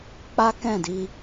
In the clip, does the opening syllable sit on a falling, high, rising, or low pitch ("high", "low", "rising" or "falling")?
high